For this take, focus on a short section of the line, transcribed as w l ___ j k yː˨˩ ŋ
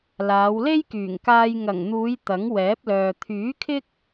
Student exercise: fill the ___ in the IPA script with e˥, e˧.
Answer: e˥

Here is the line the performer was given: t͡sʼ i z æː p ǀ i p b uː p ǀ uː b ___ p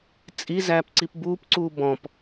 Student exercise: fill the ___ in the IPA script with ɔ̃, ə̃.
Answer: ɔ̃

